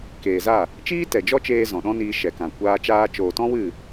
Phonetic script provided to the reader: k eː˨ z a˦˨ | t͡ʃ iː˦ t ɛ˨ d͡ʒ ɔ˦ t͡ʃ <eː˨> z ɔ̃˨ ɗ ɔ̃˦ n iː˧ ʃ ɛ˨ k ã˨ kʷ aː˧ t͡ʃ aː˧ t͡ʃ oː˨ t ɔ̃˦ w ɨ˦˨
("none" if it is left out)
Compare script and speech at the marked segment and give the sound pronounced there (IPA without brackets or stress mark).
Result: eː˧